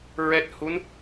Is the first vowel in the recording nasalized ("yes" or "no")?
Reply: no